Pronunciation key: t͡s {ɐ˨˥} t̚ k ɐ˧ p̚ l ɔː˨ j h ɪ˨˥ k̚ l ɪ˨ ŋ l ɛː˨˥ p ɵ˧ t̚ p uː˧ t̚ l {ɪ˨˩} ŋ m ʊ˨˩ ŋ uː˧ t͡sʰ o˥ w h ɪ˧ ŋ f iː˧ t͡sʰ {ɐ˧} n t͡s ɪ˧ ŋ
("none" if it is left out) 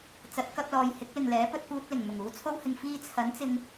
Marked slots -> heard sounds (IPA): ɐ˨˥, ɪ˨˩, ɐ˨˥

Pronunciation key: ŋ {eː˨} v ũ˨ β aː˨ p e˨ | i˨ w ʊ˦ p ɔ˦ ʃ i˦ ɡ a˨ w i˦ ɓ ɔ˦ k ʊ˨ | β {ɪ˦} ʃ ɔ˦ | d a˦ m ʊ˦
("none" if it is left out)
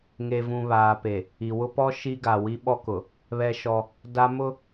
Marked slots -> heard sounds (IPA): e˨, ɛ˦

